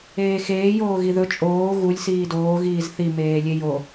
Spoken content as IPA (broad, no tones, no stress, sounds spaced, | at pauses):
eː x eː j oː ɣ i ð ɵ t͡ʃʼ oː ɣ u lʲ s iː d oː ɣ iː z θ i m eː lʲ e j o